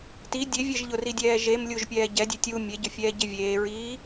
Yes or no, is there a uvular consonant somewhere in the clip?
no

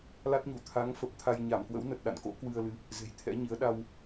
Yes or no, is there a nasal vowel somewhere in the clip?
no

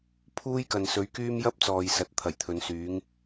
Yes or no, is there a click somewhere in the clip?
no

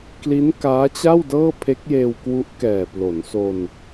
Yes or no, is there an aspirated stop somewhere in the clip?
yes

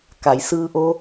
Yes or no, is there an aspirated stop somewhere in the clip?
no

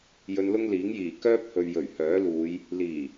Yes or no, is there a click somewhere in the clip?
no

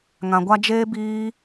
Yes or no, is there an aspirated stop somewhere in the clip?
no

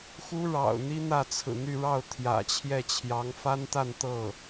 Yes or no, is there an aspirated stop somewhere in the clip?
yes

